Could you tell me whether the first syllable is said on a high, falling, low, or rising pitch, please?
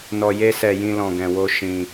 low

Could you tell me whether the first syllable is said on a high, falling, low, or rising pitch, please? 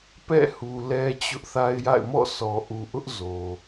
falling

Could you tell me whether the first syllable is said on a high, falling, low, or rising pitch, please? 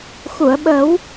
low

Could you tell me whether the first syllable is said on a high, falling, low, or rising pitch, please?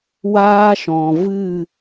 high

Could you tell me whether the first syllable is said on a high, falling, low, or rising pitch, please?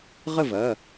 falling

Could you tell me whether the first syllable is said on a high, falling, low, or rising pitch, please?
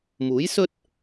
rising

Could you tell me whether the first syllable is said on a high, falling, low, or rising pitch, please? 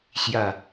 low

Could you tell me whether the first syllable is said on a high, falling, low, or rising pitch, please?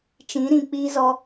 rising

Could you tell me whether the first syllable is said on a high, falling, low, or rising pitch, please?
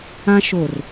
high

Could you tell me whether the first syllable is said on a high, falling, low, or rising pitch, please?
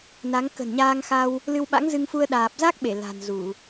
rising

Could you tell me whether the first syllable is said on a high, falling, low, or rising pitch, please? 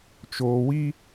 low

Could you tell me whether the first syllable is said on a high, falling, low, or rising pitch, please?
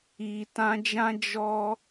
low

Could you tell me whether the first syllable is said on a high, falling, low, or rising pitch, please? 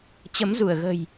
rising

